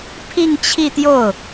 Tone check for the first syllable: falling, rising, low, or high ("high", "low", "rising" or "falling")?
falling